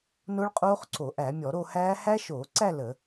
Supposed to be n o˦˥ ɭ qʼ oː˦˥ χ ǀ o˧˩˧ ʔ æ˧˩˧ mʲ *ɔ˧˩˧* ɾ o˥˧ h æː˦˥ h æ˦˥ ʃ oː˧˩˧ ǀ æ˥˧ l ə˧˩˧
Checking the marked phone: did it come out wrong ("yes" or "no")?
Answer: no